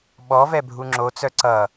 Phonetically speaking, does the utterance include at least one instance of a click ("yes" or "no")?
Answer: yes